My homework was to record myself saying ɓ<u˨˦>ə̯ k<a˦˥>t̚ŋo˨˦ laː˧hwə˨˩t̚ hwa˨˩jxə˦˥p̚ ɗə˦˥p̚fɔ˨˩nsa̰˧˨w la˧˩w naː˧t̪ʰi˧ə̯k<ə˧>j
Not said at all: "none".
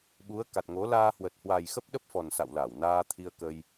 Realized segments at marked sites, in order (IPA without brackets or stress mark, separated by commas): u˨˦, a˨˩, ə˧